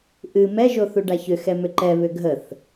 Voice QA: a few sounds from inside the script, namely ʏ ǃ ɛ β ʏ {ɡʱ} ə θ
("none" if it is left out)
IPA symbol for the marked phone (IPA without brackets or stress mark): ɡʱ